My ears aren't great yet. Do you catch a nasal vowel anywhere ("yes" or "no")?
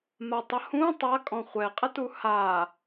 yes